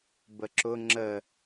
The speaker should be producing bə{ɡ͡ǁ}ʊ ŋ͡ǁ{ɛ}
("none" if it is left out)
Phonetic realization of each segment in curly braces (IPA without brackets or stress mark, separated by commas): ǁ, ə